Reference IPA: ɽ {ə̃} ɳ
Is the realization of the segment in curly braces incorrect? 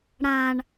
yes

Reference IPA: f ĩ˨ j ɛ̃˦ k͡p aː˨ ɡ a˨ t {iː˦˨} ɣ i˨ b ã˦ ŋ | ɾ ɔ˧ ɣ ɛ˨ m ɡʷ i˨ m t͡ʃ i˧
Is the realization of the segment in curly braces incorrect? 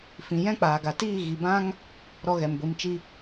no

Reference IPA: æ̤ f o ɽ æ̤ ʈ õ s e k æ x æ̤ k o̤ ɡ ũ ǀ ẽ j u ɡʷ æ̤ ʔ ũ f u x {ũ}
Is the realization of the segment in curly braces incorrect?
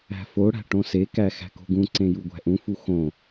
yes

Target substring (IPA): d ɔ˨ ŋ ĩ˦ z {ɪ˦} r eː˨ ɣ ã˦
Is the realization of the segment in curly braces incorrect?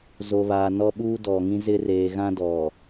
no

